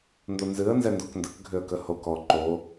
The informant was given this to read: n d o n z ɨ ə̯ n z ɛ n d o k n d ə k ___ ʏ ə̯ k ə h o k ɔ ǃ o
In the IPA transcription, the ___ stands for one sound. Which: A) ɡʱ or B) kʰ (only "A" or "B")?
A